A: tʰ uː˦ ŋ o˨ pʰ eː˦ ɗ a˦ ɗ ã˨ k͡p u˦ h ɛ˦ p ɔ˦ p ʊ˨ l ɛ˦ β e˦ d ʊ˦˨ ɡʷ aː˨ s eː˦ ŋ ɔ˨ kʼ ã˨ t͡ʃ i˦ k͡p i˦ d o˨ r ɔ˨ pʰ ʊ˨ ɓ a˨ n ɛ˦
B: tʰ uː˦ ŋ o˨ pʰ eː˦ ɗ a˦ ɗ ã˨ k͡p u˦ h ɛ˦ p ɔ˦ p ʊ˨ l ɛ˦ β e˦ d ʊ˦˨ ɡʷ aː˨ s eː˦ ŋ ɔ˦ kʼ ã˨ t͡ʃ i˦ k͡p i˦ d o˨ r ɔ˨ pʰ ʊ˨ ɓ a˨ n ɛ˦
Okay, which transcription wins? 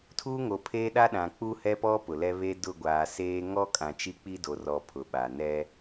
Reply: B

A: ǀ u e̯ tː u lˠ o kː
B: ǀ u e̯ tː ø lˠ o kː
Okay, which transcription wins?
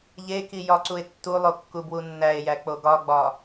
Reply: A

